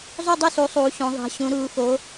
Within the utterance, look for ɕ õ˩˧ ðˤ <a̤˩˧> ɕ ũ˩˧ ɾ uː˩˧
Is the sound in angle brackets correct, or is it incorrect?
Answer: correct